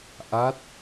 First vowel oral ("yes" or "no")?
yes